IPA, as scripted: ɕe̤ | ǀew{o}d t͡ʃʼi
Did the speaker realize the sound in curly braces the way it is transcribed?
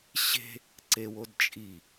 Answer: yes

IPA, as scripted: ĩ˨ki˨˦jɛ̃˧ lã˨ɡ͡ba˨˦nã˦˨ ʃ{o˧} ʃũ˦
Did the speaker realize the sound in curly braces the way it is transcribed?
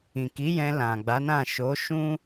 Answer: no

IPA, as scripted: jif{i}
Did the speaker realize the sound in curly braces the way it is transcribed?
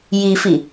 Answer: yes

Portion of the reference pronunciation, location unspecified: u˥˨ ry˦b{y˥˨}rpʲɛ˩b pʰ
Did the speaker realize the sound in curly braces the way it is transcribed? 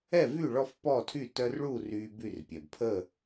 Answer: yes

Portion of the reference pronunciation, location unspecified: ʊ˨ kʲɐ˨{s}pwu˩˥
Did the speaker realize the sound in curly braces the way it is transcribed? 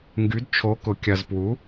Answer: no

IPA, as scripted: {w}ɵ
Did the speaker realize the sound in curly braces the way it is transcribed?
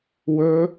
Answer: yes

